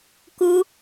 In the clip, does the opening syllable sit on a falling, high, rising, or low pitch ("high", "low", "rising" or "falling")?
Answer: high